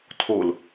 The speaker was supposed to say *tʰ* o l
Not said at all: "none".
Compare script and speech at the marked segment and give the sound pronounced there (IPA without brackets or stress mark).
tʰ